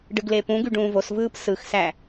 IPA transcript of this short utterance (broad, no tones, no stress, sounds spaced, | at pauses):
ɖ ɯ ɡ l e p ũ ɡ y ɖ ũː v o s v ɯː p s ɯ x s æ